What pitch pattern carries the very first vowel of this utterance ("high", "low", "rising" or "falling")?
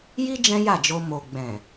high